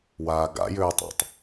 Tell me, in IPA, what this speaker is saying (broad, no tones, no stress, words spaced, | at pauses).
waːɡa̰jʏːtˤɑ̰tˤ